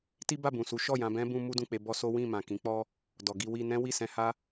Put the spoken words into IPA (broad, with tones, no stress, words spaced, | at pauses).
ti˦ba˦˨bũ˨su˨˦ ʃɔ˦˨jã˧bɛ̃˦ bũ˦mu˦dũ˦˨k͡pe˧ bɔ˦so˦ wĩ˦˨mã˨kĩ˨˦k͡pɔ˦ | dɔ˨ɡi˧wi˧nɛ̃˦ wi˦˨sɛ̃˧ha˦